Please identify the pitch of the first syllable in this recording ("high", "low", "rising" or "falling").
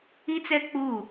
high